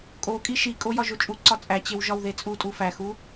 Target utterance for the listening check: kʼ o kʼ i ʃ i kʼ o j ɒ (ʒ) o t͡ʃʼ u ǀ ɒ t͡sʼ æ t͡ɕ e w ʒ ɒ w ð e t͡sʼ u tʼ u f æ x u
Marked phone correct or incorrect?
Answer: correct